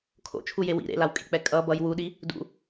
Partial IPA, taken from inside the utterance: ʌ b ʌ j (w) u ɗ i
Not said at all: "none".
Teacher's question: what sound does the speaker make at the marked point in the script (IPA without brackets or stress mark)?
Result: w